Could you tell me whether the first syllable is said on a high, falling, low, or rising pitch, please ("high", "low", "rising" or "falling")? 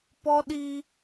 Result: high